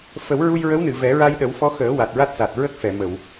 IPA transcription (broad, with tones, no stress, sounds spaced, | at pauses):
f ə˨˩˦ w ɹ u˧ j ɹ ə˧˥ w n ɨ˨˩˨ v ɛ˨˩˦ ɹ a˧ j ɗ ə˨˩˦ w f ɔ˧˥ x əː˨˩˦ w a˨˩ t̚ ɹ a˦˥ t̚ s a˨˩ t̚ ɹ ə˦˥ k̚ f ɛ˨˩˨ m ə˨˩˨ w